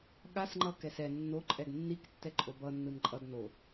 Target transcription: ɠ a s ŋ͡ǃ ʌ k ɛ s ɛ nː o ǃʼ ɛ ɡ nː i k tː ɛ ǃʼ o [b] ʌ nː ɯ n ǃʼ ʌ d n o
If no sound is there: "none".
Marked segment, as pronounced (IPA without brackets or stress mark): b